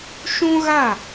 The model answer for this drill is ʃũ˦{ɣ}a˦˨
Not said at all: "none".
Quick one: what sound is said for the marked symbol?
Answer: ɣ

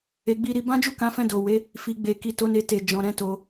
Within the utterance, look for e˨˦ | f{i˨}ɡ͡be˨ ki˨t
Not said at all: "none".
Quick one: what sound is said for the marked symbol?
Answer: i˨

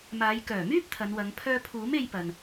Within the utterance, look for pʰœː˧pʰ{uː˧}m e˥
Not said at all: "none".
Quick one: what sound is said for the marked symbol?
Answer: uː˨˥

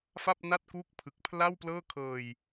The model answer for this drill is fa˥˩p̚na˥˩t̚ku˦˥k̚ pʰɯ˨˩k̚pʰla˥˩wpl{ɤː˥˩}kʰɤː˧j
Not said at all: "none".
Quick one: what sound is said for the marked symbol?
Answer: ɤː˥˩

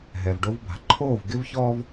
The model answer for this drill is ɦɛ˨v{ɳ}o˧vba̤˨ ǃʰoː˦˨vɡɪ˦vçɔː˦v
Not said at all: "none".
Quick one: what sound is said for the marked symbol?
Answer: ɖ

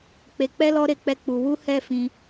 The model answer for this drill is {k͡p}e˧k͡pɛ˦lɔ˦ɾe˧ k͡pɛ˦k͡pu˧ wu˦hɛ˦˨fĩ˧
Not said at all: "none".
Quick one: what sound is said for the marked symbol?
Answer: k͡p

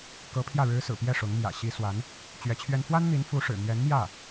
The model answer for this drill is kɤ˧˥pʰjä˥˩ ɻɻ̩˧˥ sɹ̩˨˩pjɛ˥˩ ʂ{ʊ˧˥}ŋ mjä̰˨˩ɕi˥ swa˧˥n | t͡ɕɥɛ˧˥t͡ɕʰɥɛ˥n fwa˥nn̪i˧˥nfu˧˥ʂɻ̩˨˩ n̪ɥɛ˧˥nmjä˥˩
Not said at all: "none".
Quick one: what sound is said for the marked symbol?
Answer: ʊ˧˥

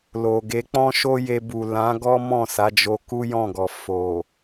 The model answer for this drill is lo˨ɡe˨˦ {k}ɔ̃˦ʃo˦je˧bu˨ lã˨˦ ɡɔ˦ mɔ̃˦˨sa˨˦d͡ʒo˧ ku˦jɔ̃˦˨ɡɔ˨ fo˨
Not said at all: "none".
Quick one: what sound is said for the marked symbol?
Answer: k͡p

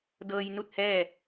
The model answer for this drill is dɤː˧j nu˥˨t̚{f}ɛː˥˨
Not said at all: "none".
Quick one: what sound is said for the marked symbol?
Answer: h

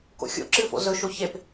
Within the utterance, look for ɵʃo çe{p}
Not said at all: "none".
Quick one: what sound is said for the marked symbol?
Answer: p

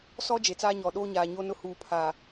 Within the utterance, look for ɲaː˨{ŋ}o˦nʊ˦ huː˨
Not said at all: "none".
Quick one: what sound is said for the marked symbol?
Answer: ɲ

